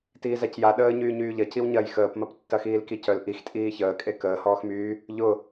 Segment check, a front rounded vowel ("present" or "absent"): present